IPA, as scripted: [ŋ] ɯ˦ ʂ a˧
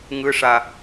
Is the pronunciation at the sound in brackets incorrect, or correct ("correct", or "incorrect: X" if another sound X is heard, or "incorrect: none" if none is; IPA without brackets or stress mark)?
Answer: correct